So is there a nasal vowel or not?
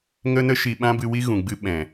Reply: yes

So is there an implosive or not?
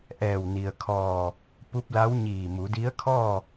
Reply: no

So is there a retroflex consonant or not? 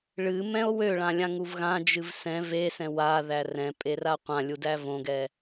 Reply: yes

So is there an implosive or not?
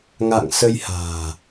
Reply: no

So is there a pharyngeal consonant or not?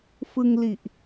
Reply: no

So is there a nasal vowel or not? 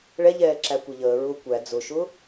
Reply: no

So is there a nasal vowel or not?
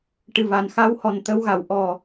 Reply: no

